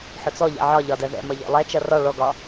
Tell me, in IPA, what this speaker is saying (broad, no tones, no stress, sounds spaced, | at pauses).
ħ ʊ t͡s ɔ ʎ ɛ̰ ʕ ɒ ʎ ɒ d ɜ ð ɛ̰ m ʌ ʎ ɔ̰ lˠ ɛ t͡ʃ ʌ r ɒ ɭ ɔ ɡ ɒ